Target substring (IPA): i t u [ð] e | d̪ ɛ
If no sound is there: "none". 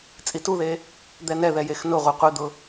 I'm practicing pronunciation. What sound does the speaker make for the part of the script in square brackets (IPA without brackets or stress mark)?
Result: ð